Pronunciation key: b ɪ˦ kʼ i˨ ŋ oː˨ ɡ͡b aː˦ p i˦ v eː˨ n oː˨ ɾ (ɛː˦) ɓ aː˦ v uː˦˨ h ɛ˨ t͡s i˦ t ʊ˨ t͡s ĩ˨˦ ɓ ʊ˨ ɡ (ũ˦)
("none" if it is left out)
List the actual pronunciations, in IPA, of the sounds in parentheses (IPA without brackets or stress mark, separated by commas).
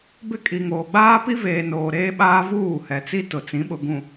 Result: eː˦, ũ˨